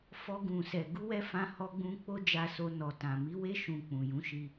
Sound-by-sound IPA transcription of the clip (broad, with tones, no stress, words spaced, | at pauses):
fɔ˧ɡũ˨sɛ˨ ɡu˧wɛ˧ fã˧hɔ˧ɡ͡bũ˧ k͡po˦ d͡ʒa˧so˧nɔ˨tã˨ mi˨˦we˦ ʃũ˧k͡pũ˨ jũ˨˦ʃi˧